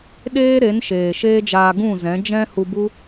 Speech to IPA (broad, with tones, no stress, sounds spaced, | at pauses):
ɗ eː˦ ɾ e˨˦ n ʃ eː˨ ʃ eː˦ d͡ʒ aː˧ ɡ ũ˦˨ z ɛ̃˨˦ d͡ʒ ɛ̃˦ h u˧ b u˦